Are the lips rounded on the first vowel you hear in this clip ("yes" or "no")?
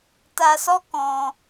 no